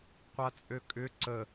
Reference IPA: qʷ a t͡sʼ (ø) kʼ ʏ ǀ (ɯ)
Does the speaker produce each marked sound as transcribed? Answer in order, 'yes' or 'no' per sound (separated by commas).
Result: yes, no